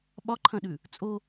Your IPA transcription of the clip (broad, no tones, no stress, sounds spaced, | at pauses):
ɓ ɒ ǃʰ ɐ̃ ɗ ʉ | t͡sʼ o